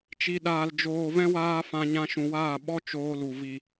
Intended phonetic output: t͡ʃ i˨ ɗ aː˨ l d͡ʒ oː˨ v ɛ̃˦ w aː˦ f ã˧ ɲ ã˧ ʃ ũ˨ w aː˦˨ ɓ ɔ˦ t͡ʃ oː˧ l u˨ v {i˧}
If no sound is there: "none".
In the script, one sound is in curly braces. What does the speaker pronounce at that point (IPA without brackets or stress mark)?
i˨